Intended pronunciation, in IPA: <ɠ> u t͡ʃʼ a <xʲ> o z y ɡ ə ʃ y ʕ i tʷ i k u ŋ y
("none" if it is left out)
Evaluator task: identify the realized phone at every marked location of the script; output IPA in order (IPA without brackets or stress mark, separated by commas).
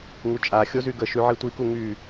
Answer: ŋ, xʲ